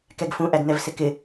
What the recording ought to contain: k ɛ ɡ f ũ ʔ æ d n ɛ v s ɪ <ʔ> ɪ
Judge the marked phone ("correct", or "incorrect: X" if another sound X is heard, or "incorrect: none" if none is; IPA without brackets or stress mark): incorrect: k